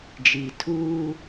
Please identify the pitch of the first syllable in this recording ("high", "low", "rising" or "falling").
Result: low